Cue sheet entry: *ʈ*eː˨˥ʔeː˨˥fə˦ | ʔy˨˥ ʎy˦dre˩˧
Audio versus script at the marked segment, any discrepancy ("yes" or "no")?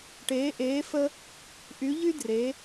no